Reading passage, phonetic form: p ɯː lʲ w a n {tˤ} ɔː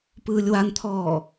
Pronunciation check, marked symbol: incorrect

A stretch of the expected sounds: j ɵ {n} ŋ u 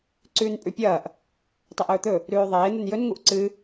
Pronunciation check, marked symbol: correct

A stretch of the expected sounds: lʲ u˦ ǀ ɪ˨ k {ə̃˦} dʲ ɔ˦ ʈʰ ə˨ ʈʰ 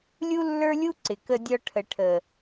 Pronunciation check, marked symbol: incorrect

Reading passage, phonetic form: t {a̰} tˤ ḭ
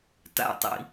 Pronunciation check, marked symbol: correct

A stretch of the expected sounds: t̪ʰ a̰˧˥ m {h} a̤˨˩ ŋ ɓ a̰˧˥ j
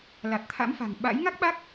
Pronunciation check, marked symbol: incorrect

